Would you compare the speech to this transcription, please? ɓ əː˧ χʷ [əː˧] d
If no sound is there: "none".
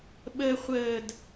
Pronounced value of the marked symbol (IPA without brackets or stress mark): əː˧˩